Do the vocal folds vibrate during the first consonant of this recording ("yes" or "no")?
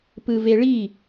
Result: no